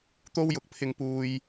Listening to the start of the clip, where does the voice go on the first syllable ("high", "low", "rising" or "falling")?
high